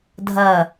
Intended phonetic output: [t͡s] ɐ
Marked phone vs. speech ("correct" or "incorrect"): incorrect